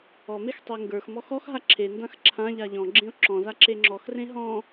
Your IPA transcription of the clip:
ɔ m e x tˤ e ŋ ɡ ə˞ x m ɔ x ɔ x ɦ a ǁʰ e n d ã x ǁʰ ã ʎ a ʎ ɔ̃ ɡ͡ǁ ẽ ʊ̯ ǁ ɔ̃ z a ǁ e ŋ͡ǁ ɔ x r ẽ ɦ ɔ̃

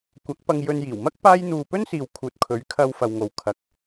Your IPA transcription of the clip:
kʷ ɐ˨˥ k̚ p ɐ˧ ŋ j ɵ˧ n j iː˨˩ w m ɐ˥ k̚ p aː˥ j n̪ uː˧ p ɵ˥ n s iː˨ w kʰ uː˨ t̚ kʰ ɵ˨˥ ɥ kʰ ɐ˧ w f ɐ˨ w ŋ o˨ w kʰ ɐ˨˥ k̚

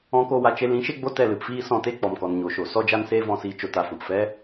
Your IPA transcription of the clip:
ɔ̃˧ k o˧ w a˨ t͡ʃ e˧ l ĩ˨˦ ʃ e˦ ɡ͡b o˦ t ɛ˦˨ l ɨ˨ p f iː˦ s ɔ̃˧ t e˦ k͡p ɔ˨ m k ɔ˨ n ɲ o˨ ʃ o˨ s ɔ˦ d͡ʒ a˦ n s eː˦ v ɔ̃˦˨ s iː˧ t͡ʃ o˨ t a˨ f ɔ̃˨ p f ɛ˦

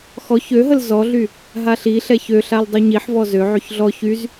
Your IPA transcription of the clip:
x ɔ ç ø ɦ ə l z ɔ ɮ y | ɦ a ɬ i ɬ ɛ ç ø ɬ a l dˤ u ɲ i ħ v ɔ z ø ʕ y ç ɮ ɔ ç y z

